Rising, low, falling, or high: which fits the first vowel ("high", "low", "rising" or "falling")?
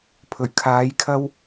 low